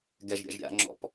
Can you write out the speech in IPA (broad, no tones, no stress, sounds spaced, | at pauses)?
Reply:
ɡ ɛ ʒ ɾʲ a̰ ʒ ɾʲ a̰ ŋ͡ǁ ɔ̰ p